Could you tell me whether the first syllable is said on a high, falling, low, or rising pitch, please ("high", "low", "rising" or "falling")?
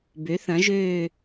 rising